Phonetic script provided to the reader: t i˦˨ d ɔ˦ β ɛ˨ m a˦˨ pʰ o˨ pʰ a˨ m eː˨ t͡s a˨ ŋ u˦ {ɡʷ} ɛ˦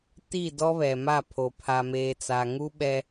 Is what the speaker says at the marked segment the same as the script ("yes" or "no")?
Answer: no